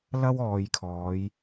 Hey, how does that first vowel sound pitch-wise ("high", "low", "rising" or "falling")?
high